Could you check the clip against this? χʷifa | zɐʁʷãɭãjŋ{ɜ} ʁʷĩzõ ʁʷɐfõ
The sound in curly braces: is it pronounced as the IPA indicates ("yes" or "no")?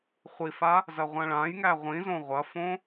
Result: no